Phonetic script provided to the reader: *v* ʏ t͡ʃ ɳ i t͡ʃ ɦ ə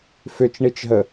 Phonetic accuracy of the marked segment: incorrect: f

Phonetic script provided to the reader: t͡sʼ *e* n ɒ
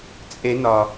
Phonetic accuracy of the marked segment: correct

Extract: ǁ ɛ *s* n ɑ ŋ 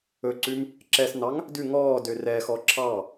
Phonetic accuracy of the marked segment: correct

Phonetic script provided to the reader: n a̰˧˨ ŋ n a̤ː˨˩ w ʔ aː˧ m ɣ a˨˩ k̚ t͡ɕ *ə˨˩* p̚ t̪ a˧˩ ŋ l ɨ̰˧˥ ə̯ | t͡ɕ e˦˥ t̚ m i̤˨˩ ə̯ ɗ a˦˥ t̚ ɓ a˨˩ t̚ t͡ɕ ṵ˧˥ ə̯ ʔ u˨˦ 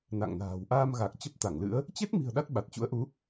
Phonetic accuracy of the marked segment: incorrect: ə˦˥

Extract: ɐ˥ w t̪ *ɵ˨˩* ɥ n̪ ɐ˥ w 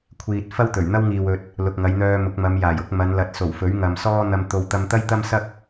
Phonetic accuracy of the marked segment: correct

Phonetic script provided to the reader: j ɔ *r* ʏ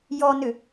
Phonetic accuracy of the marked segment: incorrect: n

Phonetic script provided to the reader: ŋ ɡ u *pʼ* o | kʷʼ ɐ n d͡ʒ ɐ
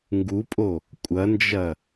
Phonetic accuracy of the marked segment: correct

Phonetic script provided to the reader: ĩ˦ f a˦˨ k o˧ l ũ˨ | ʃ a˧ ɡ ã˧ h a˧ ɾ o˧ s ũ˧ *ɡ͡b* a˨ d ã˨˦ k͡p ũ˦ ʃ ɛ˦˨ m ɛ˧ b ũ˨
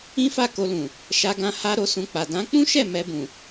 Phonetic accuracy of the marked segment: incorrect: k͡p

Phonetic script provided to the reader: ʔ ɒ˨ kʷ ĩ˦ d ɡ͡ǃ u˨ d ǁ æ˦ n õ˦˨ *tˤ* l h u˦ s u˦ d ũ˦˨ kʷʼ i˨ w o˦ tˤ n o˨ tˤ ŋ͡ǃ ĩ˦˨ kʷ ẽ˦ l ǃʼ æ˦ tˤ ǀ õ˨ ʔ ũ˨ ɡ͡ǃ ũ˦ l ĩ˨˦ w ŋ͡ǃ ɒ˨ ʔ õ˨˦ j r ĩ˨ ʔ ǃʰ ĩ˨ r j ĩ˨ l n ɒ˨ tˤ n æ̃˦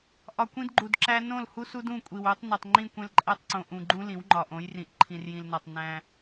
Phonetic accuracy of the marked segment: incorrect: none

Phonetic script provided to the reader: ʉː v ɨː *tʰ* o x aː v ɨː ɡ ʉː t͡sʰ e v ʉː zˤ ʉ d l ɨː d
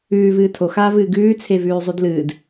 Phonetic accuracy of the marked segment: correct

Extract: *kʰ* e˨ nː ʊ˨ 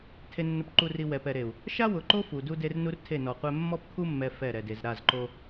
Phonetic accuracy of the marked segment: incorrect: tʰ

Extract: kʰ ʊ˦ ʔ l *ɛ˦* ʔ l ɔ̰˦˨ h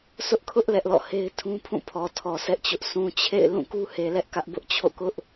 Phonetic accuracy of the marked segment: correct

